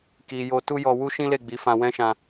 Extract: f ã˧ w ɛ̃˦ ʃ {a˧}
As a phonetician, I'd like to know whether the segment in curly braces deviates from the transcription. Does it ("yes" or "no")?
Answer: yes